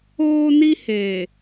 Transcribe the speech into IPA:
oː˦ n i˦ h eː˨

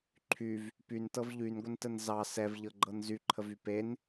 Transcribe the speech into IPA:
ǃʰ y v | p y n t ɤ v ʎ y n ɡʷ ə n t ə n z ɑ s ɛ v ʎ ɤ ɡ͡ǃ ɤ n z y ǃʰ ə v y p e n

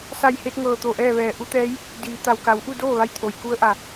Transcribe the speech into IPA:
s a˧˩ j h e˧ t̚ ŋ ɤː˧˩ t̪ o˧˩ ʔ ɛː˥˨ ʋ ɛː˧˩ ʔ u˧˥ t̪ ɛː˧˥ j | d iː˩˧ t̪ a˩ w k a˩˧ w ʔ u˥˨ d oː˥˨ ʋ a˧ j t̪ʰ o˩ j k u˧˥ ə̯ ʔ a˩

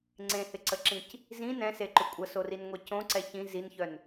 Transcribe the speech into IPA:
ŋ͡ǀ ẽ h ɪ ǀ ə ǁ ĩ c | z ĩ n ɛ̃ s e ǃ ʏ kʷʼ ə s o r i n ŋʷ ɛ c õ ǀ ɛ ç ĩ z i n ç œ n

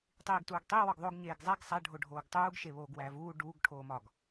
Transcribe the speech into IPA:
tˤ iː ɡ t uː ɡ tˤ i w ɒ ɡ ðˤ o ɡ ɲ eː ɡ zˤ æ ɡ sˤ æ ɖʱ o ɖʱ oː ɡ tˤ uː ɡ ʃ e β oː ɡ w æː v uː ɖ uː ɡ ʈʰ oː m ɒ ɡ

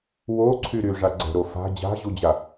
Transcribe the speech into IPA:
w o ǀʰ y ɾ y ʐ a ɡ͡ǀ ɛ̤ ɾ o f a̤ d͡ʑ a̤ ʑ u d͡ʑ a

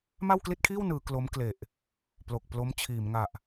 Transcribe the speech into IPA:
m a˥˩ w k l i˥˩ t̚ kʰ iː˥˩ w n ɯː˩˦ k l o˦˥ m k l e˨˩ ʔ | p l o˨˩ k̚ p l o˦˥ m t͡ɕʰ iː˩˦ m ŋ a˨˩ ʔ

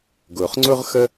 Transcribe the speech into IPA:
ɡ ʊː˩ χ ŋ͡ǀ ʊː˥ ʁ x ə˥

